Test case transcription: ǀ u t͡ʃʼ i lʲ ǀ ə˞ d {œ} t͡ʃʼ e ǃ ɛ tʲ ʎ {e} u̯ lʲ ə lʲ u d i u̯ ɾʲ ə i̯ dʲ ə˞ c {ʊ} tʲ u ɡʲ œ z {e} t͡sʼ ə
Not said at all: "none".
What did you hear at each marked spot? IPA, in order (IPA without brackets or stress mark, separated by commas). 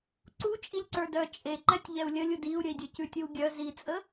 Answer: œ, ɛ, ʉ, i